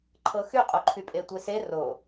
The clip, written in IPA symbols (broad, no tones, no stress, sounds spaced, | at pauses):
ǃʰ ɤ x y qʼ o ǃʰ y pʼ e tʷ e s e r o